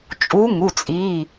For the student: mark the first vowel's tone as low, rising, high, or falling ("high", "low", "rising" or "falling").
rising